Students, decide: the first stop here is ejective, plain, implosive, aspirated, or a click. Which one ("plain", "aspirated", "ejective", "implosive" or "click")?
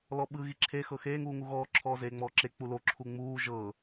implosive